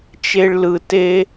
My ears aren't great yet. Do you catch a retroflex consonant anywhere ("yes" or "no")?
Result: yes